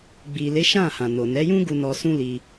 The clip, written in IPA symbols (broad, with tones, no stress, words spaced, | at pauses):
ɡ͡bi˨le˨˦ʃã˦˨ hã˨ no˨nɛ˨˦jũ˦ɡu˧ nɔ˧sũ˦li˧